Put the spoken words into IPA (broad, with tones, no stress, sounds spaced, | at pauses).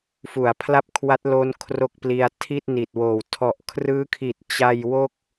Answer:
f u˩˦ a̯ pʰ l a˥˩ p̚ kʰ w a˦˥ t̚ l o˦˥ n kʰ r o˥˩ k̚ p l i˧ a̯ tʰ i˥˩ t̚ n i˨˩ t̚ w oː˨˩ w tʰ ɔ˨˩ ʔ kʰ r ɯː˦˥ kʰ i˨˩ t̚ t͡ɕ a˧ j w o˥˩ k̚